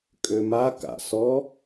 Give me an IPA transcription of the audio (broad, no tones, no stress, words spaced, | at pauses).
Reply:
kʼøma ka̰ sɔ